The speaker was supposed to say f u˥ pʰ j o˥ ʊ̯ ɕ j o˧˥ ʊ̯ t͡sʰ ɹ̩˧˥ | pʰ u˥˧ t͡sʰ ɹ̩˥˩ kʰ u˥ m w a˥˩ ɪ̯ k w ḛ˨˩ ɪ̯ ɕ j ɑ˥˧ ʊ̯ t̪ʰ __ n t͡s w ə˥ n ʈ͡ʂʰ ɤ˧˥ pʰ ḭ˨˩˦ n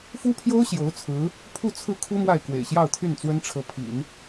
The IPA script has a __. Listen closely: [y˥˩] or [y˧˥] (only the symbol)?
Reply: y˥˩